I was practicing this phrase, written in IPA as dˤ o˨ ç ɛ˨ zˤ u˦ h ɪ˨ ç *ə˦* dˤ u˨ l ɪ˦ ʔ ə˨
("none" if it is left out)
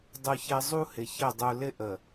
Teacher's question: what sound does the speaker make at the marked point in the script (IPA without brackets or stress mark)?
ə˦˨